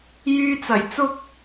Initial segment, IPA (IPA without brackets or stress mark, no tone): j